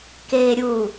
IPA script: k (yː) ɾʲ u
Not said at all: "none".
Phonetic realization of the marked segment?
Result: eː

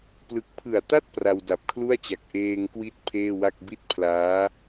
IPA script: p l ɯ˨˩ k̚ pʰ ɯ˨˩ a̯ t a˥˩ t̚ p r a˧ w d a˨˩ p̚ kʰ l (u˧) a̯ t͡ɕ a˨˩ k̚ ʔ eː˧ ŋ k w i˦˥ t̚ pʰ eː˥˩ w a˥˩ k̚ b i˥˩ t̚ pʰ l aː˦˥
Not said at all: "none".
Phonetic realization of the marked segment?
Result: u˥˩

